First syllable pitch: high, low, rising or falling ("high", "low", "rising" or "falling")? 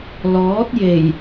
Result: rising